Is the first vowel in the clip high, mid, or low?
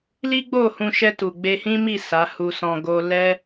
high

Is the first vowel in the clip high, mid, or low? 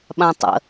low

